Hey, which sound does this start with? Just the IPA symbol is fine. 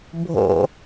bʱ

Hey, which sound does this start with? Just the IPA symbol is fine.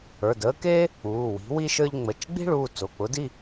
ə˞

